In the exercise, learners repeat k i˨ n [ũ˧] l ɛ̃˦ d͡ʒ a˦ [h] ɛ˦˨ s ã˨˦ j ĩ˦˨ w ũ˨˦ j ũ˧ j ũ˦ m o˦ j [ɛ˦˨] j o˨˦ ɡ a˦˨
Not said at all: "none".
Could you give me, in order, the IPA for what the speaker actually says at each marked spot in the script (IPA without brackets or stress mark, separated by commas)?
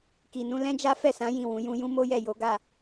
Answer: ũ˧, f, ɛ˦˨